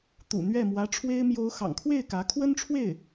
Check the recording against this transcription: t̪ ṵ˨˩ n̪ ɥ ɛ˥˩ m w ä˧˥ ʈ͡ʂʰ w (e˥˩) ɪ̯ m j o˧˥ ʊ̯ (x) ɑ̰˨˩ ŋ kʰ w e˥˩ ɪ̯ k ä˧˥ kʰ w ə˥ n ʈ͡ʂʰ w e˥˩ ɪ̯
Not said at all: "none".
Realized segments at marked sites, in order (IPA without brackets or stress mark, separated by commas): e˥, x